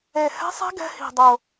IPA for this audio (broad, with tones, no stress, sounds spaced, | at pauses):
e˨˩ h ɛ̤˦˥ sˤ ɛ̤˦˥ ɡ ɛ̤˦˥ h i̤˨˩ dˤ ʊ˨˩